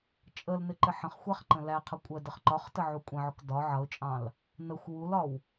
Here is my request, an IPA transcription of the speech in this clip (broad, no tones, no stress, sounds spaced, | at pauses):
t͡ʃʼ ə l n ɪ ǃ ɪ ħ ə̃ χ xʷ æ χ ǃ ə̃ l æ qʰ ʌ kʷʼ ɜ d ə χ ǃ ɒ χ t ə ʕ u kʷʼ ə̃ ʕ ʊ k d ɒ ʕ ʌ ʊ̯ t͡ʃʼ ɑ̃ l | n ə xʷ w u l ɒ w